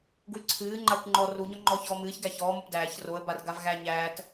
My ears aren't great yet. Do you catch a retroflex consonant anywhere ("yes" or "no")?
no